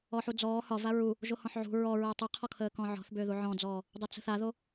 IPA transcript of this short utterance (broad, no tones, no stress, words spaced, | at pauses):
ɔħud͡zɔː hɒva ɹu | ʒohɔ̃ħʕṳ ɹɔɹəː tˤəqʰɔkʰəːkɔ̃ ʕɔ̤θbʏː ðuʕɔ̃d͡zɔː | dˤət͡sə̤θaðo